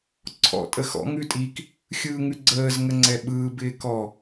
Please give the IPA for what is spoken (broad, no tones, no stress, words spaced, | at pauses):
ǀʰɔ̰ tʼəxɔ̰ ŋʉtʼik | xʲɯːŋʉɡ͡ǀəːz ŋəŋ͡ǀɛɓɯː bɪːkɔ